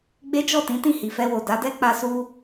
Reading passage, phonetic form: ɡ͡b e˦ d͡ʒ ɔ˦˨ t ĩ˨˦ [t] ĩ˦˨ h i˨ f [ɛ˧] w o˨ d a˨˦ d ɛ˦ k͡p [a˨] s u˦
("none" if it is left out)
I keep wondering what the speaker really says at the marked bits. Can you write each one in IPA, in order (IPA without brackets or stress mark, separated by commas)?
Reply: t, ɛ˧, a˦